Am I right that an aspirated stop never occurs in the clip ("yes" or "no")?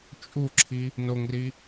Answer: no